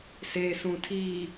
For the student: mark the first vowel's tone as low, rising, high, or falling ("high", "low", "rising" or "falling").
low